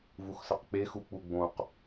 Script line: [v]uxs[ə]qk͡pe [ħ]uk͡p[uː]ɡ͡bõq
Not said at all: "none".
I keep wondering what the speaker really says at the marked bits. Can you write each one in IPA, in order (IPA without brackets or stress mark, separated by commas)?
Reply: v, ə, x, u